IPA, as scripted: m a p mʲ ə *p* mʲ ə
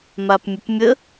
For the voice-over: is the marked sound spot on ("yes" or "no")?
yes